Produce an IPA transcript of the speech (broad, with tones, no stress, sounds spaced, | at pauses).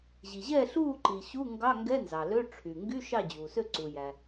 ʑ i˩ ʑ ɛː˥˩ ɬ uː˥˩ ǃ i˩ ɕ u˧˥˧ ŋ ɡ ɑ˧˥˧ ŋ ɡ ɛ˧˥˧ n z ɑ˩ l ø˧˥˧ ʈ͡ʂʰ y˩ ŋ ɡ y˧˥˧ ʃ ɑ˥˩ d͡ʑ uː˩ s ø˥˩ ǀ u˩ j æ˩